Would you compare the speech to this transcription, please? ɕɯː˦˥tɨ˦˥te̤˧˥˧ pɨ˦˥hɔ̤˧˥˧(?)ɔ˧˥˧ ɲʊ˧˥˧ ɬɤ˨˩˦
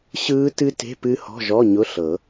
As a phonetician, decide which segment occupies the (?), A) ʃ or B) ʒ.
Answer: B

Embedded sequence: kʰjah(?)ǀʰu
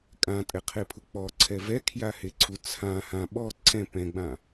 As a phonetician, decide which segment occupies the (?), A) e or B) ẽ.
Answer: A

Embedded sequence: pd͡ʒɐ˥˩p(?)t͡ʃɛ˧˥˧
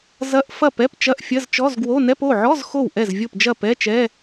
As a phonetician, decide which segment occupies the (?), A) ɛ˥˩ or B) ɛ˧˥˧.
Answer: B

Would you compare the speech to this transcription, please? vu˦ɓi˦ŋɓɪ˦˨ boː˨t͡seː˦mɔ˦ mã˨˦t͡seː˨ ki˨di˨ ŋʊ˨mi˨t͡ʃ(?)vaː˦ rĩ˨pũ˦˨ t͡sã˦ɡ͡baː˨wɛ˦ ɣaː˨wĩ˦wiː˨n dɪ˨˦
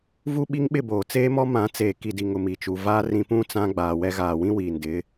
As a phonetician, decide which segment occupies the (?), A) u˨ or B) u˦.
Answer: A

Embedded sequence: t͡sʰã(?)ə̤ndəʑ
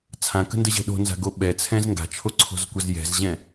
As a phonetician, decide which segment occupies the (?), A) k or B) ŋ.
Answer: A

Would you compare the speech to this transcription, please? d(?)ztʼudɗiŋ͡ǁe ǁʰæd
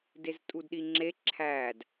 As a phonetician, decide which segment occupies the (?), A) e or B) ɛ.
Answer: A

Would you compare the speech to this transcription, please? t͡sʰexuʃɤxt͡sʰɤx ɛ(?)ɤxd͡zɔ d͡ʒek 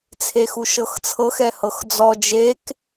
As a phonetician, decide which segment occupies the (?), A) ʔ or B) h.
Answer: B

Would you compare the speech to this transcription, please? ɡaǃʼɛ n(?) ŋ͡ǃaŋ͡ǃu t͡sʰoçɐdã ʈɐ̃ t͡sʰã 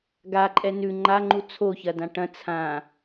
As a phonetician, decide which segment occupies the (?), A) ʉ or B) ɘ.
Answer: A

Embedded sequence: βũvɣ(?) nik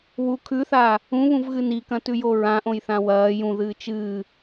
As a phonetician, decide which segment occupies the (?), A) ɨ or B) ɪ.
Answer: A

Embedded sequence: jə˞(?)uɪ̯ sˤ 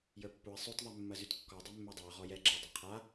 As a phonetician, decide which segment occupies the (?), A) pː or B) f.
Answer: A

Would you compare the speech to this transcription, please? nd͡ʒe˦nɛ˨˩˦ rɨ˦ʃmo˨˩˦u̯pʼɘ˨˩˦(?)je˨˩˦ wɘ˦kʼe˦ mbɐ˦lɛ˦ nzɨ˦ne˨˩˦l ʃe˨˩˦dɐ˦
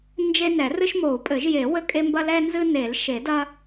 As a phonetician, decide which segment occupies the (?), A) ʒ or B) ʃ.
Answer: A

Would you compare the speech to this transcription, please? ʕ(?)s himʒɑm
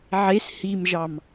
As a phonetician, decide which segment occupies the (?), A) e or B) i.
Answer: A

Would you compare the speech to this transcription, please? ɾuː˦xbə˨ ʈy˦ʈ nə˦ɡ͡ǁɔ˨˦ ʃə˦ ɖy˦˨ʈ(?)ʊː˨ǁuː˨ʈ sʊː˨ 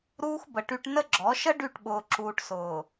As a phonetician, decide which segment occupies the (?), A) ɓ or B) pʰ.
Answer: A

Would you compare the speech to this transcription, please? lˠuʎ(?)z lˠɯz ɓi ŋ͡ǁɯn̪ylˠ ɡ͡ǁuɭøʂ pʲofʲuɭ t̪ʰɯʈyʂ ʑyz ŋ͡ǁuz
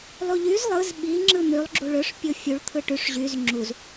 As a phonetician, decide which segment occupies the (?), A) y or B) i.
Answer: A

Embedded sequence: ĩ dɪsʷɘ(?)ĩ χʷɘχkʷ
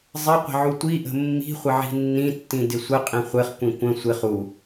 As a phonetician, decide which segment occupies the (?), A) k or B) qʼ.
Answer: B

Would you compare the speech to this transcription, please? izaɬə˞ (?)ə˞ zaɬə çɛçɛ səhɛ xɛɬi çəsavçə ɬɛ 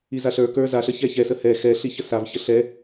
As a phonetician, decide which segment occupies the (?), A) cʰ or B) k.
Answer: B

